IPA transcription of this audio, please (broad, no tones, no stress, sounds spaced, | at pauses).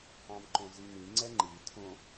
ɑ̃ m ǃ õ z i ŋ ĩ ŋ͡ǀ ɛ ŋ͡ǃ i tʰ õ